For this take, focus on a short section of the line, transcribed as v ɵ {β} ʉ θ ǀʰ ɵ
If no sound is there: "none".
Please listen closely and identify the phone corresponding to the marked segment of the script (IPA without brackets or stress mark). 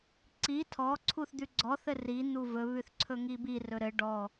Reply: β